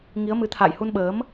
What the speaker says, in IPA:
ŋ i˨˦ ə̯ m ɨ˨˦ t̪ʰ a̰ː˧˨ j h u˧ n ɓ əː˨˦ m

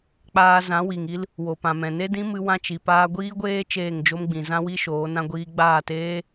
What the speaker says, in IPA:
k͡p aː˧ z ã˨˦ w i˨ ŋ i˦ l | w o˨ p ã˨ m ɛ̃˨ n e˦ d ĩ˦ m ɨ˦ w ã˦ t͡ʃ i˨ p aː˧ ɡʷ iː˦ ɡʷ eː˦ t͡ʃ eː˦˨ ŋ d͡ʒ o˦ m ɡ͡b ĩ˨ z ã˦ w i˦ ʃ oː˨˦ n ã˦ ɡʷ iː˦ ɡ͡b aː˦˨ t eː˦

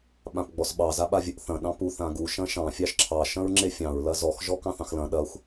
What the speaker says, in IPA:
ɓ ã p ɡ͡b ɔ s ɓ ɑ z a ɓ a vʲ ə ʔ θ ɐ̃ ɗ ɑ̃ p u θ ã ɡ u ʃ ɐ̃ ʃ ɑ̃ fʲ ɑ ʃ ǁʰ ɑ ʃ ɐ̃ ɹ ŋ͡ǁ e fʲ ɑ̃ ɹ l ɐ z ɔ x ʒ ɔ k ɑ̃ θ ɑ̃ x l ɐ̃ ɗ ɐ xʷ

